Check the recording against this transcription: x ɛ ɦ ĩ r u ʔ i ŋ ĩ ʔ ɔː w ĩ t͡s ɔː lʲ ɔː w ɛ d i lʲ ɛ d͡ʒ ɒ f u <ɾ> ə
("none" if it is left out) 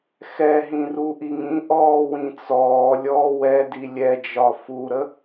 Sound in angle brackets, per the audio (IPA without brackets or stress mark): ɾ